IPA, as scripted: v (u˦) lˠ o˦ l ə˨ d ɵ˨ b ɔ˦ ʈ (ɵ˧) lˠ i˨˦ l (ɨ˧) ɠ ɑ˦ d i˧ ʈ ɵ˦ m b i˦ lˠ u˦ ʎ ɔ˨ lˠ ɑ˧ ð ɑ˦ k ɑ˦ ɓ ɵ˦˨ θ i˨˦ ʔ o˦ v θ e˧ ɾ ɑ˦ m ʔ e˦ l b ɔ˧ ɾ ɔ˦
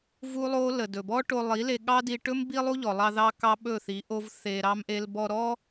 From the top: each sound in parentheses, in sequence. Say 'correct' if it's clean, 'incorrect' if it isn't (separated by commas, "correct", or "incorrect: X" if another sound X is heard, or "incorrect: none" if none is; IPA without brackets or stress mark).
correct, incorrect: o˧, incorrect: e˧